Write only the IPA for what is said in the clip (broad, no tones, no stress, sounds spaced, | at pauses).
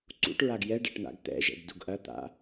ǀ ṵ ʈ ɹ a ɡ j ɛ ɖ ɛ ʈ n̪ a̰ ɡ t̪ ɛ̰ ʒ ɛ̰ ɡ d u ɡ ʔ ɐ t̪ a̰